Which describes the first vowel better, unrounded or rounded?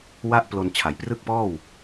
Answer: unrounded